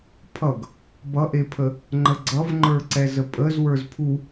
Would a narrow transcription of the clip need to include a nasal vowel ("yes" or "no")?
no